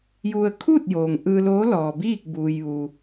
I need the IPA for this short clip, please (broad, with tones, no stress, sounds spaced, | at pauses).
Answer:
j u˧ ə̯ kʰ uː˥˨ t̚ j oː˩ ŋ ʔ ɯː˧ l oː˧˥ l ɔː˩ b iː˥˨ k̚ b uː˩ j ʋ u˩